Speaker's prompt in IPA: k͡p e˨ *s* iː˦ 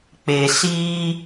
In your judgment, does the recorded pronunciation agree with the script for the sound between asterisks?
yes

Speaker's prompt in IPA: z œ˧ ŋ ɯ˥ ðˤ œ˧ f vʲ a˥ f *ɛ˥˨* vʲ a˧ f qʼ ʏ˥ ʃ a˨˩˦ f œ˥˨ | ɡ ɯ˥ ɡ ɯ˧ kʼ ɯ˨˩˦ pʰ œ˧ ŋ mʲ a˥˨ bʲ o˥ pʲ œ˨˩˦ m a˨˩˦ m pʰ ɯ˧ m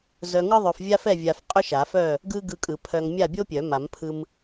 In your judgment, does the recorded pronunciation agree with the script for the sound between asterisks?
yes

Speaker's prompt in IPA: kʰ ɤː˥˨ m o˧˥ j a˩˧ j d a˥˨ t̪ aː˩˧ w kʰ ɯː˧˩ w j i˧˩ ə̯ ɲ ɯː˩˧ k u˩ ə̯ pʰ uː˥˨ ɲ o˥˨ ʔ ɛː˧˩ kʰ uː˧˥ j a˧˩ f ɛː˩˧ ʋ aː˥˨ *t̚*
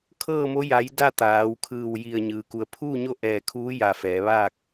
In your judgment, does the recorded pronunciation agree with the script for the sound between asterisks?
no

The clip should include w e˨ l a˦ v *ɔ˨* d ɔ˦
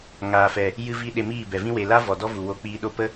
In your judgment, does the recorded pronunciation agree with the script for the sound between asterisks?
yes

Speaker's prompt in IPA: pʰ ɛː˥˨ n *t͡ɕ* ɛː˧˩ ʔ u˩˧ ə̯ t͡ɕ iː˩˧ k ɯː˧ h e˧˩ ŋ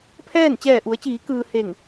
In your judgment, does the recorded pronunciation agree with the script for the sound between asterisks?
yes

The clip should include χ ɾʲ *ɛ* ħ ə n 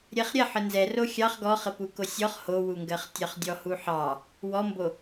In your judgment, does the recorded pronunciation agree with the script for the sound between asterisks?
yes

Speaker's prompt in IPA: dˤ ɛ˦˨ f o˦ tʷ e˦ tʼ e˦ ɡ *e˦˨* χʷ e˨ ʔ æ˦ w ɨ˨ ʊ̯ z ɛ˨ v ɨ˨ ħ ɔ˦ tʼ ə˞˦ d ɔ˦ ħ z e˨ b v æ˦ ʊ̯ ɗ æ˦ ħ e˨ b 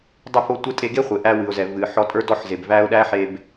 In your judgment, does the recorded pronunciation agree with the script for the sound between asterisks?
no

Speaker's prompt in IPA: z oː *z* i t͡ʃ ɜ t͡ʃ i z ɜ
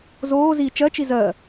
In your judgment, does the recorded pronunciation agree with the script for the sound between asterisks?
yes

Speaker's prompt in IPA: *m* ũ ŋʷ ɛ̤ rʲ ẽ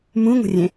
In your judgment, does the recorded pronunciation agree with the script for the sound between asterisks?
yes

